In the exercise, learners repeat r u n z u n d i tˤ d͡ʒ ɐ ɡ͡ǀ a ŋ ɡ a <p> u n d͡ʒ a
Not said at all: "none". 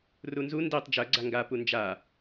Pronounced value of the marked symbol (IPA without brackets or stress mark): p